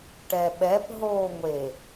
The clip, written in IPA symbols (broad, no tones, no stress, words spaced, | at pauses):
ʈɛɓɛp ɦoːŋʷe